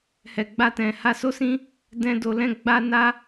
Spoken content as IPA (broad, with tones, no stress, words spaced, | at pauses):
hɛ˨ɡ͡ba˧tɛ̃˨ ha˧so˦sĩ˦ | dɛ̃˧ do˨ lɛ̃˧ɡ͡ba˧ na˦